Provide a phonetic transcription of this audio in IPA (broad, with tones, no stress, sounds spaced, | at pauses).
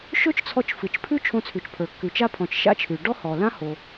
ʃ ɵ˥ t͡ʃ t͡sʰ ɔ˧ t͡ʃ f ɨ˩ t͡ʃ pʰ ʉ˥ t͡ʃʰ õ˧ t͡sʰ ʉ˩ t͡ʃ pʰ ə˞˩ kː ʉ˩ t͡ʃ a˧ pʰ ɔ̃˩ t͡ʃ ʃ a̰˥ t͡ʃʰ ʉ˩ ɖ ɔ˥ h ɔ˩ l ã˥ h o˩